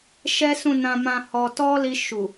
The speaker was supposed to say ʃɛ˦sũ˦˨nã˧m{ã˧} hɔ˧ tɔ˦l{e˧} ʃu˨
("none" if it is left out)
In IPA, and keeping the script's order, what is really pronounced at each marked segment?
ã˧, i˧

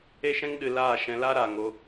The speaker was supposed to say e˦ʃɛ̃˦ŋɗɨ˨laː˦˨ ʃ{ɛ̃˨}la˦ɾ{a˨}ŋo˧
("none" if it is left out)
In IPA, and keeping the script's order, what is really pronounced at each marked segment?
ɛ̃˧, a˨

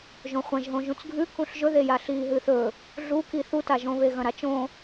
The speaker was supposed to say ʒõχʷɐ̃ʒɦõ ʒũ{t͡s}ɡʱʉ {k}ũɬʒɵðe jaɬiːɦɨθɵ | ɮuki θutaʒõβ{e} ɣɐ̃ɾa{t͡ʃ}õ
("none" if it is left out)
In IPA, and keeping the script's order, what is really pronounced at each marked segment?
t͡s, k, e, t͡ʃ

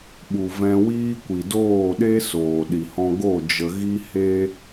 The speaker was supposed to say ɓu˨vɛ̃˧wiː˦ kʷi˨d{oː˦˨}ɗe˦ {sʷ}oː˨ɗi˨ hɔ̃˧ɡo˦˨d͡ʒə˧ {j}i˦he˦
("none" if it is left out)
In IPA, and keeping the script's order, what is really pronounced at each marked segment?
oː˦˨, s, ɣ

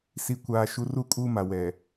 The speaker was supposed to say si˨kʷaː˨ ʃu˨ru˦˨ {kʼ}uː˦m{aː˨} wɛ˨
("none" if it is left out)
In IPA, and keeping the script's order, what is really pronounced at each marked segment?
kʼ, a˨

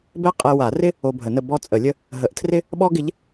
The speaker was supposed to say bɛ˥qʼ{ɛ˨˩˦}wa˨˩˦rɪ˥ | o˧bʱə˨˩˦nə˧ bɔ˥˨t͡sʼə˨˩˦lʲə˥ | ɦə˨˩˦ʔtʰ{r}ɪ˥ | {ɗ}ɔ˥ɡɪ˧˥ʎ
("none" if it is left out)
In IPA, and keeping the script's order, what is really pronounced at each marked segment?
ɛ˧, r, ɓ

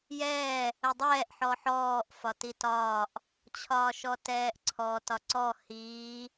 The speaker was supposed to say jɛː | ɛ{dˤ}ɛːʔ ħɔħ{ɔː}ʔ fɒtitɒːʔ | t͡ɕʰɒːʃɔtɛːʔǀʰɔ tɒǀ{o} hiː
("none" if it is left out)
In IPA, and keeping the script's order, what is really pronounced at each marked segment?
dˤ, ɔː, ɔ

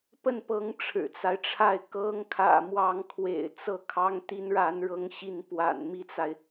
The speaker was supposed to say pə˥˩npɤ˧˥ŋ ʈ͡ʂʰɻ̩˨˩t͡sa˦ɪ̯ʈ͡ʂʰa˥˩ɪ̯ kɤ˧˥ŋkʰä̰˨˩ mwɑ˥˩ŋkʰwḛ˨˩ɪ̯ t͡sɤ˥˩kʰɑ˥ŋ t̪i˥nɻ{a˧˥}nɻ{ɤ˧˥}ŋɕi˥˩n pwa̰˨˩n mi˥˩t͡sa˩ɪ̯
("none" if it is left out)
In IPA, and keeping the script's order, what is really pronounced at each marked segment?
a˧˥, ɤ˧˥

